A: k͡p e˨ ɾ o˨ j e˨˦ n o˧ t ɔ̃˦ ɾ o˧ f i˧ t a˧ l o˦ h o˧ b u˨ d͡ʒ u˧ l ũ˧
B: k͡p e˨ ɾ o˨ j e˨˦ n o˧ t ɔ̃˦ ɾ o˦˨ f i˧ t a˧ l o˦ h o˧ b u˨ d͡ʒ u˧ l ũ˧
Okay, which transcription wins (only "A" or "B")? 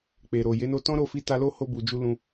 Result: B